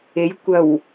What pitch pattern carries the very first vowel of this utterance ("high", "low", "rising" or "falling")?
rising